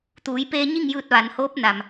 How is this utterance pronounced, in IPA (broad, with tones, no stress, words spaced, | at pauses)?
t̪uː˩˧jpeː˧ɲi˥˨ŋjɯː˧t̚ ʋa˩˧nhoː˧˥p̚na˩m